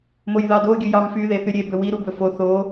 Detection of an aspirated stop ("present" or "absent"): absent